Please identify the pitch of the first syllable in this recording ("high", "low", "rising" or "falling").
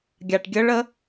low